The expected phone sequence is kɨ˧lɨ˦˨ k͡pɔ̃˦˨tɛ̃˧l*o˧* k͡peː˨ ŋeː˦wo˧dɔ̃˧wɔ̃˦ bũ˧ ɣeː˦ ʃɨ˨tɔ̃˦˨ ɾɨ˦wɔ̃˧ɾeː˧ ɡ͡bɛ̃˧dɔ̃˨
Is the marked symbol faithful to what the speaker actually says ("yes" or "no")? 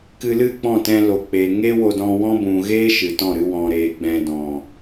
no